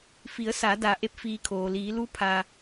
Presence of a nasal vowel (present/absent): absent